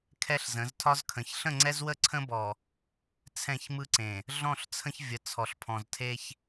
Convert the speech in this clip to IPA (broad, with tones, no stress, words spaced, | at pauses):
kʰɛ˦ɬzə̃˨˦ztʰɒ˦zkʰə̃˨ç ɬə̃˦˨ŋ͡ǀɛ˦zwə˦˨ ǀʰə̃˦bɔ˨ | t͡sʰɛ̃˦˨çmɯ˦ǀẽ˨ | ɮɔ̃˦˨ɬt͡sʰə̃˦çvʲə˨ t͡sʰɔ˨ɬpʰɔ̃˨ztʰe˦ç